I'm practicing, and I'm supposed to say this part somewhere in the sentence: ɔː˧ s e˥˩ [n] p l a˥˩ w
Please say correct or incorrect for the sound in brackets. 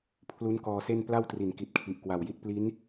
correct